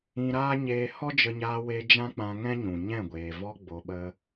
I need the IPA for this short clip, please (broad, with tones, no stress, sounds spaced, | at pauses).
ĩ˧ ɾ aː˦ ɲ eː˧ h ɔ˦ d͡ʒ ə˧ ɲ aː˧ w e˧ d͡ʒ ã˦ k͡p ã˧ ŋ ɛ̃˦ ɲ ũ˨ ɲ ɛ̃˦˨ ɡʷ eː˨ v ɔ˧ ɡ͡b o˨ ɓ ə˧